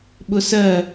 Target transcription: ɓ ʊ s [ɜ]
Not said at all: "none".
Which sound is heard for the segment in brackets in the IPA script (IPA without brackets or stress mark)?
ɜ